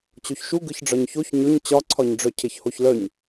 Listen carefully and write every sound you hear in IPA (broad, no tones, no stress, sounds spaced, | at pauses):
t͡ɕ o ç ʃ u ɡ ɯ ç ɖ͡ʐ ɒ ɲ ç o ç ɲ ɵ ɲ t͡ɕ ɒ ǀʰ ɒ ɲ ɖ͡ʐ œ cʰ e ç h o ç l œ ɲ